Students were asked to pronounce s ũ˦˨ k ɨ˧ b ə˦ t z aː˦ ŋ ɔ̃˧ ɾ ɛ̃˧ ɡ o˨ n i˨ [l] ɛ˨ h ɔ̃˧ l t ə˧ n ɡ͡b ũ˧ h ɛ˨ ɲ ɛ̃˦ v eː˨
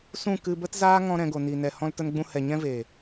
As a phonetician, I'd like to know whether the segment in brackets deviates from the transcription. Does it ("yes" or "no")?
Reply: yes